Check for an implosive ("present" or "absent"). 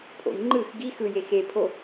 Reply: absent